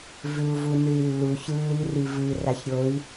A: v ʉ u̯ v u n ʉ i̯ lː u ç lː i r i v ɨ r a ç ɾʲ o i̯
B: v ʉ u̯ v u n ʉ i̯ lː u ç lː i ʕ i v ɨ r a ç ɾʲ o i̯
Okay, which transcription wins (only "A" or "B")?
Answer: A